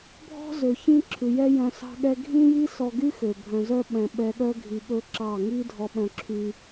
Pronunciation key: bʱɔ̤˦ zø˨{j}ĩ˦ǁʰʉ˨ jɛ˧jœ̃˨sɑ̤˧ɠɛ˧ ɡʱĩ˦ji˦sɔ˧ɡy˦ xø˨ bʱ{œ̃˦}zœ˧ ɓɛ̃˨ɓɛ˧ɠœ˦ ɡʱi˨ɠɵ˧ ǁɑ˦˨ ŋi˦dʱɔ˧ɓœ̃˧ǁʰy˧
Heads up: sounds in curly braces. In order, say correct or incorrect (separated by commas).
incorrect, incorrect